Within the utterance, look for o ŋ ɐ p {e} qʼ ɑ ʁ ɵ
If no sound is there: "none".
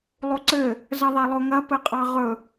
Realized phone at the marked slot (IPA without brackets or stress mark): ɘ